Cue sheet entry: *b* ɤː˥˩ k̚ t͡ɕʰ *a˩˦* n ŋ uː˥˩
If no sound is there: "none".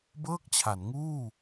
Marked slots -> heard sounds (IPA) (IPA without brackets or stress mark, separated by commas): b, a˩˦